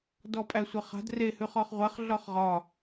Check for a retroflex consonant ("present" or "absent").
absent